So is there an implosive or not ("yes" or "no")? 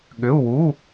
yes